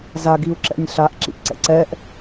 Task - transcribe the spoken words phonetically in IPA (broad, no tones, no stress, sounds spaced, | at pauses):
z a ɡ i u̯ ǁ ɛ̰ nʲ ɬ a ʔ ǁ ḭ ʔ ǀ ɛ̰ ǀ ɛ ʔ